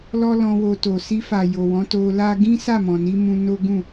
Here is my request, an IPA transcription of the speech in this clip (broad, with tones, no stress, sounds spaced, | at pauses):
l ɔ˦ l ɔ̃˧ w o˧ t o˨ s i˧ f a˨ j o˨ w ɔ̃˨˦ t o˧ l a˦ ɡ ĩ˦ s a˦˨ m ɔ̃˨ n i˧ m ũ˧ n o˦ ɡ ũ˦˨